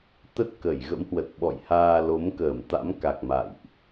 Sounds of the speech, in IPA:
t̪ə˦˥t̚ kə˧˩jɣə̰˧˥mhwə˨˩t̚ ɓɔ̰˧˨jhaː˧ lo˨˦mkəː˧˩mt̪a̰˧˥mka˨˩k̚ ma̰˧˨jʔ

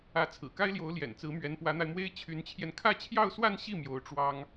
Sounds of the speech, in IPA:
ä˧˥ t͡sʰɹ̩˨˩ka˥ɪ̯ljo˧˥ʊ̯ ljɛ̰˨˩nt͡sɹ̩˧˥mɥɛ˧˥n pwä˧˥n̪a˧ɪ̯mwe˥ɪ̯ t͡ɕʰy˧˥nt͡ɕʰjɛ˧n kʰä˥˧t͡ɕʰjɑ˥˧ʊ̯swa˥˧nɕi˥˩ mjo˧˥ʊ̯ʈ͡ʂwɑ˥ŋ

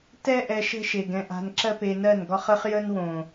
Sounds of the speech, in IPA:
tɛ˦ʔɛ˧ ʃə̤˦ʃe˨ɡɛ̃˧ʔa̤˧n ǁɜ˦pe˧nɜ˦˨nɡɒ˦χ ə˧χ jə˦nwõ˨

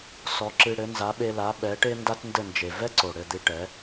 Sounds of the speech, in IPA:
sɔ˨˦ǁɨ˧ɽɘ˨˦ nza˨˦ɓe˧la˨˦ ɓɛ˨˦ ʈe˦nda˦tndɘ˦˨nd͡ʒe˨ vɛ˦ǀo˨ ɽɘ˦˨d̪ɨ˧ʈɛ˨˦

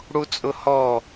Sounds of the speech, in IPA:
ɽut͡sʼʊhɔ

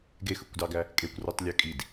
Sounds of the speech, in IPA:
ɡexɯkʷdɑɡæ | kʼekʷrutˤlʲø kʼid

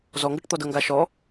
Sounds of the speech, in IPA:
zɔŋɡɤʈ t̪ɔdɤŋɡa ʃɔ

